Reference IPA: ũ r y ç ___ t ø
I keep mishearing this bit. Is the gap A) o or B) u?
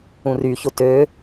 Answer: A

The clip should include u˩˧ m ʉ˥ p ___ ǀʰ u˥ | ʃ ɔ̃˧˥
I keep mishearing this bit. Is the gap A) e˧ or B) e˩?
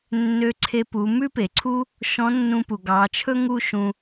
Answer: B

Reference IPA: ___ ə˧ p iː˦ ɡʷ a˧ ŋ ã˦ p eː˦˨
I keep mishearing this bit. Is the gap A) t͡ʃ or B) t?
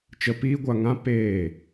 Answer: A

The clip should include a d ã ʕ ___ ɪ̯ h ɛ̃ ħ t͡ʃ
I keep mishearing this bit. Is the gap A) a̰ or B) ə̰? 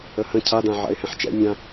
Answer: A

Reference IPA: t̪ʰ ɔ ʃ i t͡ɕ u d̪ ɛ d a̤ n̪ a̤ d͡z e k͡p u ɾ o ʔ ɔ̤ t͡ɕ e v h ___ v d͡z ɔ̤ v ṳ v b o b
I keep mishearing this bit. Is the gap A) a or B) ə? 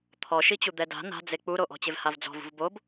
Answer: A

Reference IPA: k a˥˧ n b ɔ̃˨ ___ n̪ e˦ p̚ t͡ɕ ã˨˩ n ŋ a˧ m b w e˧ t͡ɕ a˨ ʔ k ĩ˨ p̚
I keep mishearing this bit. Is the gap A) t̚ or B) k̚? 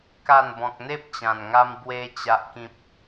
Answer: B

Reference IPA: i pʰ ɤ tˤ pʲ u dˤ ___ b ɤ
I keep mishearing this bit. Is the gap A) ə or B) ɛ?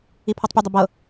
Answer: A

